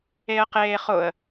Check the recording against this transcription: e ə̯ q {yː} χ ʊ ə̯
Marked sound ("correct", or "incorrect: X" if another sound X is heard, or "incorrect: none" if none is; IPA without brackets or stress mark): incorrect: eː